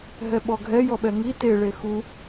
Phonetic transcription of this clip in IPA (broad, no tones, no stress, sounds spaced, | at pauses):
ɦ ɛ ɓ ɔ ɡʱ ɛ j ɔ ɓ ɛ ŋ i t e ɭ e x u